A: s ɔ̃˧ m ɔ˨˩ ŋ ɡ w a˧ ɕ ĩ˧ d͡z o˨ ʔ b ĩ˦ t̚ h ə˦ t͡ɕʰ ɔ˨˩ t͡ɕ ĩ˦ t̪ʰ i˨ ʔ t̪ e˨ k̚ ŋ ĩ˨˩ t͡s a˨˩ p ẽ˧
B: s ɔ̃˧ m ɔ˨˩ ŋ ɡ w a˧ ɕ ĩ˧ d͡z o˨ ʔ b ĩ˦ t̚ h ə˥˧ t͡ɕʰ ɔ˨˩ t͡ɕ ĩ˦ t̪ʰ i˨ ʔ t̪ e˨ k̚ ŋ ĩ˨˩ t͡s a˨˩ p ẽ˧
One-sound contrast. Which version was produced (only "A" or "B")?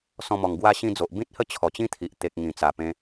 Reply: B